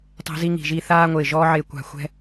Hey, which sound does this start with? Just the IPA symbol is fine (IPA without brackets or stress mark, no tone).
tˤ